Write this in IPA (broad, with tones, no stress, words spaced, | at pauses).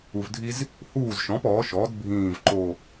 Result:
u˨vdʱi˦z | huː˦˨zʃɔ̃˩˥p ɔː˩˥ʃɔː˩˥d bʱĩː˦˨vǃo˦˨